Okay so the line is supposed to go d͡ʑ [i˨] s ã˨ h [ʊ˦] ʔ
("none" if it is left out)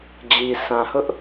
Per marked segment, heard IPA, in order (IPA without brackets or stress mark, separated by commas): i˨, ʊ˦